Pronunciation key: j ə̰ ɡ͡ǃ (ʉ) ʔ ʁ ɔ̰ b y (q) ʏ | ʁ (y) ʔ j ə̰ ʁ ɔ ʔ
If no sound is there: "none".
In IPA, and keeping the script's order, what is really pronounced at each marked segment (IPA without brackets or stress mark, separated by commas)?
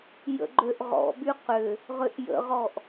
ø, q, ʏ